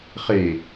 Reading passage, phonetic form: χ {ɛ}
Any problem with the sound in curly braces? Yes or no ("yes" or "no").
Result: yes